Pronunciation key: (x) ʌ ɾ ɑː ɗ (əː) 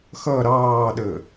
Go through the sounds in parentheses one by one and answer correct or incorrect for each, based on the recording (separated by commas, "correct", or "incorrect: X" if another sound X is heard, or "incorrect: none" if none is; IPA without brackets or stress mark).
correct, correct